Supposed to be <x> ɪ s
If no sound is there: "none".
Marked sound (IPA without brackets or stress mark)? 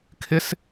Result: kʰ